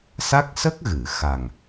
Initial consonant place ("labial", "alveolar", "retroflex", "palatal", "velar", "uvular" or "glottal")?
alveolar